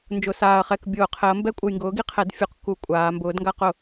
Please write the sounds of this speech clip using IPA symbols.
n d͡ʒ ʊ˨˩ s aː˨˩ ɐ̯ χ ɛ˥˩ k bʲ ʊː˧˩˧ qʰ ɛ˩˥ ɐ̯ m b ɛ˦ kʷʼ ɘ˨˩ j ŋ ɡ ʊː˩˥ ɡ i˩˥ qʰ ɛ˩˥ d fʲ u˩˧ q k u˨˩ kʷʼ aː˩˧ m b ʊː˩˥ d ŋ ɡ a˦ q ʊ˧˩˧

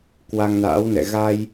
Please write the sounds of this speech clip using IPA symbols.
k w a˧ ŋ n a̰ː˧˥ w n ɛ̰˧˨ ɣ a˧ j

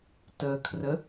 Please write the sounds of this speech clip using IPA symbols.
t ə kʰ r ə

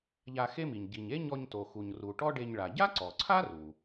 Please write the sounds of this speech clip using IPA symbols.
ʎ a˧ x e˥ m i˩ ɲ ɟ i˩ ɲ e˥ ɲ ɔ˧ ɲ t o˩ x u˩ ɲ r u˩ ʈ ɔ˥ ɖ e˧ ɲ ɭ a˩ ɟ a˥ ǀ ɔ˩ ǀʰ a˥ r u˩

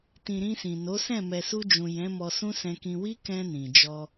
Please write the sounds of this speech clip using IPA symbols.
t ĩ˨ ɾ ĩ˧ s ĩ˨ n o˨˦ s ɛ̃˦˨ m ɛ˨ s u˧ d͡ʒ ũ˨ j ɛ̃˨˦ m ɔ˧ s ũ˦ s ɛ̃˧ k ĩ˧ w i˦ k ɛ̃˧ n ĩ˨ d͡ʒ ɔ˧

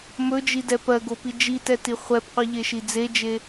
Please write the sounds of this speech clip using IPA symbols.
m ɵ d͡ʒ i d ɛ p ɜ ɡ o p i d͡ʒ i t ɛ t i χʷ ɛ b qʷ i ʎ e ʃ i d͡z e d͡ʒ e

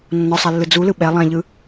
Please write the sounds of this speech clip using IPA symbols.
nː ɔ sˤ a lː ɯ d͡z u l ɯ ɓ ɛ lˠ ɛ̃ ʎ ɯ

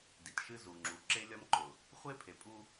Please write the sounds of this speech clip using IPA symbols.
d i˨ t ʃ ɨ˦ z u˨ ŋ͡ǁ u˨ ǁ e˦ lʲ ɒ˦ m ǃ ʊ˨ | χʷ e˦ pʰ e˨ pʼ u˦

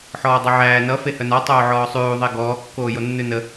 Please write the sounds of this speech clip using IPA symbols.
ħ ɔː dˤ ʌ ʕ æː n ʌ f e h œ n ɔ tˤ oː ʕ ɔː sˤ ʉː ðˤ e ɡ ɔː kː oː j o nː ʉ n ə

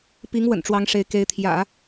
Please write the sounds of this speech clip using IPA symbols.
p i˧˥ ŋ w ə̰˨˩ n ʈ͡ʂ w ɑ˧˥ ŋ ʂ e˧˥ ɪ̯ k e˧˥ ɪ̯ t̪ʰ j ä̰˨˩˦

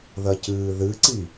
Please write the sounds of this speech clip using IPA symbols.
ð ɐ c ɨː ð ɨ ǀ i

